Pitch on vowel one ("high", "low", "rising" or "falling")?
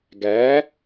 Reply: rising